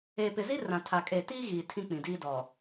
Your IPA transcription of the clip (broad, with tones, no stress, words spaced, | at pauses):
eː˨pɪ˨zi˦ rã˨tʰa˨kʼeː˨ tiː˦ɣiː˨ tʰĩ˦ k͡pĩ˨diː˦dɔ˨